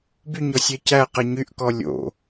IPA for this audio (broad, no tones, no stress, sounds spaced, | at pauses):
b y ɲ ɔ sʲ ɛ c æ q ɛ ɲ y ʔ k ɔ lʲ o̰